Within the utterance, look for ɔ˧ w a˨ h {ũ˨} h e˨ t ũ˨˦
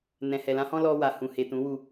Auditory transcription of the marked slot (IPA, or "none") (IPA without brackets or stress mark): ũ˨